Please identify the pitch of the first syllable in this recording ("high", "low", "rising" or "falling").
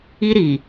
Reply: high